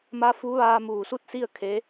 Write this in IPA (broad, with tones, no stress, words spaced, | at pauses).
ma˧˥ fu˧˥ʋaː˧ muː˧˩su˥˨t̚ si˥˨ə̯ kʰe˧˥